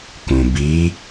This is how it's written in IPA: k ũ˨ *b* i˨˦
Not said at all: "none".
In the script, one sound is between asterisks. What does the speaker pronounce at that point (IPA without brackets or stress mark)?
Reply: b